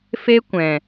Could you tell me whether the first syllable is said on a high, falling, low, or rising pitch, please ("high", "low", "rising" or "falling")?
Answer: high